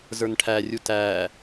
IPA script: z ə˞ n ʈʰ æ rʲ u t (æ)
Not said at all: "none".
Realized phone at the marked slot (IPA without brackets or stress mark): æ